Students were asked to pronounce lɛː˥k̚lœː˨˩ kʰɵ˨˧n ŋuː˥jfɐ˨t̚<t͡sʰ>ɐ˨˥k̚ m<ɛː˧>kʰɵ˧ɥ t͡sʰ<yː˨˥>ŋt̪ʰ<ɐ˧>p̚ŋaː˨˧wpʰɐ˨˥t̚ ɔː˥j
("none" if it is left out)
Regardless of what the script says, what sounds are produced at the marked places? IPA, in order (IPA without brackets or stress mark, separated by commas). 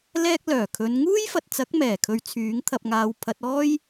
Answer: t͡s, ɛː˨˩, yː˨˥, ɐ˧